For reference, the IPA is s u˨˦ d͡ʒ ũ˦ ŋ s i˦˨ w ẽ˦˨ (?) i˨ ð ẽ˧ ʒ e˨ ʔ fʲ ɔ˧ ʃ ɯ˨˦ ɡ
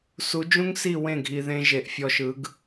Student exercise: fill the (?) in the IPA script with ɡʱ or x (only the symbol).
ɡʱ